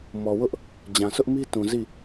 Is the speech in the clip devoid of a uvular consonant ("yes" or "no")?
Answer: yes